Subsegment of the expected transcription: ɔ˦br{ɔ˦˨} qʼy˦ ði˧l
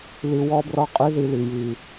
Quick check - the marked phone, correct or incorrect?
incorrect